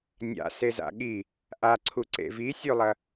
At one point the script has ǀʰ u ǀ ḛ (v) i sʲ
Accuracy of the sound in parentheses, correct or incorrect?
correct